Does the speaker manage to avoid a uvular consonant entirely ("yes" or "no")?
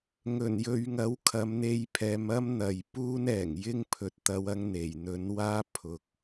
yes